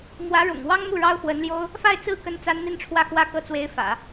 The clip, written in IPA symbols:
m w ä˧˥ ɻ ʊ̰˨˩ ŋ w ɑ˥ ŋ m u˥˩ ɻ ɑ˥ ʊ̯ x w ə˧˥ n l j o˥ ʊ̯ | f a˥˧ ɪ̯ t͡s ɹ̩˥˩ k ə˥ n t͡s a˥ n n̪ i˥ n ʈ͡ʂʰ w ä˥˧ x w ä˥˧ k ɤ˥˩ t͡s w e˧˥ ɪ̯ f ä̰˨˩˦

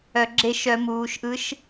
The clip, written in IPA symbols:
œ˧˩˧ ɡ͡ǁ e˥˨ ʃ œ˧˩˧ m uː˩˧ ʃ ʔ ɯ˧˥ ʃ

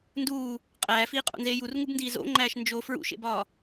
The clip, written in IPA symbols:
n d uː | qʼ æː f iː qʼ o̰ n z eː j u r ŋ u b n d iː z o̰ ŋ͡ǃ æː ʃ n d͡ʒ o f ɹ ṵ ʃ ḛ b ɒː

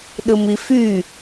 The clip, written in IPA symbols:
ɗ ɯ m i f y

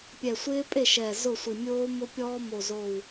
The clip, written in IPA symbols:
pʲ ɛ˧˩ sʷ ɪː˦˥ pʼ e˥˩ ʃ ɛː˧˩ z ʊ˥˩ sʷ i˧˩ mʲ oː˦˥ m ʊ˦˥ pʲ ɔː˦˥ m o˧˩ z oː˧˩ w

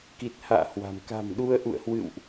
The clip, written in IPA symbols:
k i˨˩ t̚ h a̰ː˧˨ h w a̤˨˩ m k a̤˨˩ m ɗ u˧ ə̯ ʔ ṵ˧˨ ə̯ h w ɨ̰˧˨ w ʔ

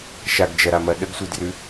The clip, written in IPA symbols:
ʃ a ɡ d͡ʒ ɐ ɾ a m ɐ ɗ ə ɡ sʷ i d r ʉ

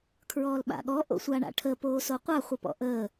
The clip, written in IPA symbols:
kʰ ɹ ɔː l ɓ a̰ ɠ ɔ ʔ o̰ sʷ a ɳ a̰ ʈʰ ə p oː s o qʷ a χʷ ɪ p ɔ̰ ʔ əː

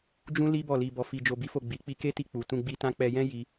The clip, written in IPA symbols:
d͡ʒ ũ˦ l i˦ b ɔ˦˨ l i˧ b ɔ˧ f i˧ d͡ʒ o˧ b i˦ f o˦˨ ɡ͡b i˨˦ k͡p i˧ k e˦ t i˧ k͡p u˨ t ũ˧ ɡ͡b i˧ t ã˦ k͡p ɛ˧ j ɛ̃˦ j i˧

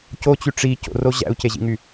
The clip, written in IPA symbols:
c o t͡ɕ y ʈ͡ʂ i c o̰ r o ʑ æ̰ u̯ c e ʑ ḭ ŋ y

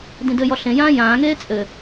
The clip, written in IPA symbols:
d ĩ d ɘ j ɔ ɬ ẽ j ãː j ãː ŋ eː t͡sʼ ɘ

